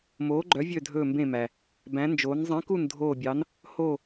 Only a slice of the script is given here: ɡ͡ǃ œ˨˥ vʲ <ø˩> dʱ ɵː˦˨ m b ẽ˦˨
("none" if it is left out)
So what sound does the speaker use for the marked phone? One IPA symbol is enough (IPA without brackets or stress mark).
ø˦˨